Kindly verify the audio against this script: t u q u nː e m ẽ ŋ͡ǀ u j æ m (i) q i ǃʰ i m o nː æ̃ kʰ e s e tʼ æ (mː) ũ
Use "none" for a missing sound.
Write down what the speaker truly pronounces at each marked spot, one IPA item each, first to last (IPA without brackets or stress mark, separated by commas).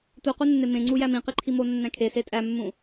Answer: ĩ, mː